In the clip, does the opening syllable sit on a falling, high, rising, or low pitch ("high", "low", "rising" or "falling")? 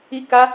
high